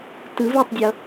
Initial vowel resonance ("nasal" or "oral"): oral